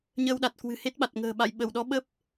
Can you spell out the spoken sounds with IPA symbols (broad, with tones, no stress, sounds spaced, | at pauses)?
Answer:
ɲ əː˧ w ɗ a˨˩ t̚ k w ɨ̤˨˩ h e˦˥ t̚ ɓ a˨˩ t̚ ŋ ə̤ː˨˩ ɓ a̰˧˨ j ɓ ə˧˩ w ɗ ɔ˨˦ ɓ ə˦˥ p̚